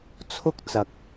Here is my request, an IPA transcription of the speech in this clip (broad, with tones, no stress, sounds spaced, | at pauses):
t͡sʰ ʊ˥ k̚ t͡s ɐ˨ k̚